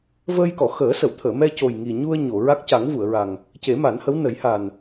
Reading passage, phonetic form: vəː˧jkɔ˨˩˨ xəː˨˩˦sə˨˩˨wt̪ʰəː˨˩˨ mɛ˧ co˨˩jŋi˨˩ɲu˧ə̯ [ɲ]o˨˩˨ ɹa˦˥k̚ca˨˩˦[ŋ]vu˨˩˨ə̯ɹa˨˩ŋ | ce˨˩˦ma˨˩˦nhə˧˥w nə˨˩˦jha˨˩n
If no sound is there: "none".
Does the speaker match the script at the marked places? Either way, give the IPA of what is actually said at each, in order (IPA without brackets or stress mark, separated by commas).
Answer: ɲ, ŋ